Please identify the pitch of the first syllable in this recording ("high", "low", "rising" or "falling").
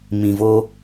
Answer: low